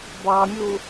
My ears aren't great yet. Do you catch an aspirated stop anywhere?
no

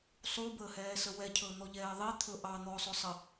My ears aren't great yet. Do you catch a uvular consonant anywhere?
no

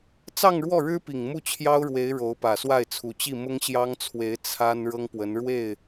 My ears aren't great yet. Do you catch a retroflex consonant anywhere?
yes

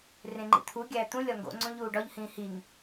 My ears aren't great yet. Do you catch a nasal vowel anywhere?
yes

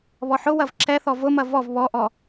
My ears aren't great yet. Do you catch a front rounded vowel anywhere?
no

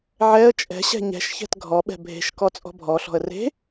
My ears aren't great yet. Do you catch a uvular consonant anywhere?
no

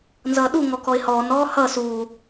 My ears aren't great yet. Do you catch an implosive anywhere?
yes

